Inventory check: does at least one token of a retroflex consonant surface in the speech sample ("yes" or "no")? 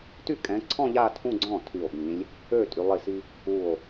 no